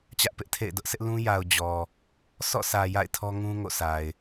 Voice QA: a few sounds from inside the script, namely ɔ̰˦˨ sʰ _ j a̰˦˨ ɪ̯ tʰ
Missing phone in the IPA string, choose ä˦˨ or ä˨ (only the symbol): ä˨